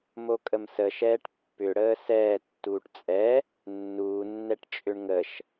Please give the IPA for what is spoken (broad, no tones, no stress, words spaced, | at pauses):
mokʼəmsəʃɛːʈ pːʏɽəː sɛːtːuːʈ t͡sʼɛ | nːuːnːɛʈ t͡ʃʼʏɳŋəʃ